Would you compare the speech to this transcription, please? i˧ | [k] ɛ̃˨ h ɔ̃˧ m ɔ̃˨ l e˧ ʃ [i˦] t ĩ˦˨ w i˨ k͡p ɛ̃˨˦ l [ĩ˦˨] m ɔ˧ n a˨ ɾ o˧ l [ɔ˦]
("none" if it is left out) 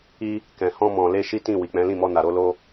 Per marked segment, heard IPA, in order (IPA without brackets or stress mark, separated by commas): k, i˦, ĩ˦˨, o˦